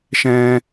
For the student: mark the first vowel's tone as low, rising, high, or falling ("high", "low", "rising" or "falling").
high